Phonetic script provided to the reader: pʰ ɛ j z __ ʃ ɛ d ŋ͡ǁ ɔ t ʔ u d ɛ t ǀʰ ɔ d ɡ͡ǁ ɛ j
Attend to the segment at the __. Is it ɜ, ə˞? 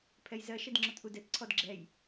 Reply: ɜ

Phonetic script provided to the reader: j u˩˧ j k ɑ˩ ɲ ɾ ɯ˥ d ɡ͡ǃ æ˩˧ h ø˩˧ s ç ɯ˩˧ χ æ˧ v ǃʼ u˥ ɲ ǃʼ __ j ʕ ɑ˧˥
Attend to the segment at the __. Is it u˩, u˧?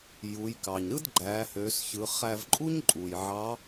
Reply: u˩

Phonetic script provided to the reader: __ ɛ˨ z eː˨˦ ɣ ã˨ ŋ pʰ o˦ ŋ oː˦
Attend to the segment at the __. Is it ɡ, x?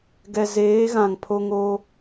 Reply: ɡ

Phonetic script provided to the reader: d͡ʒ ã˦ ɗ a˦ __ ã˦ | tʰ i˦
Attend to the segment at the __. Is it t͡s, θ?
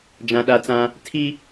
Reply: t͡s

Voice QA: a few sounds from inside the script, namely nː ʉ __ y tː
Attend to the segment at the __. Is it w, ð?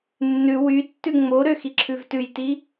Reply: w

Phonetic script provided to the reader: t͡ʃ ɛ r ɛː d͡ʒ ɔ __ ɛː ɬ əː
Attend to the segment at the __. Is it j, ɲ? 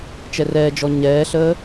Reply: ɲ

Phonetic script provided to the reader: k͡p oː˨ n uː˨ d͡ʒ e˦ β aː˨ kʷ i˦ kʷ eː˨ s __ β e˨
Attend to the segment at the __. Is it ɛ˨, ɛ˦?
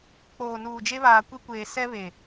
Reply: ɛ˦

